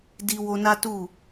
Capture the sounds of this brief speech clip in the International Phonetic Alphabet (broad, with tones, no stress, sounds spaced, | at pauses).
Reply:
d i˧ w o˧ n a˦ t u˦˨